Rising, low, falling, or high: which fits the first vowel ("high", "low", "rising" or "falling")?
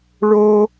high